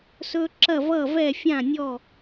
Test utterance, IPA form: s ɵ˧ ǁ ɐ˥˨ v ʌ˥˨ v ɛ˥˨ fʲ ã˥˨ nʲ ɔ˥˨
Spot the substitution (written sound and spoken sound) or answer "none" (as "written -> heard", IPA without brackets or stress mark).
none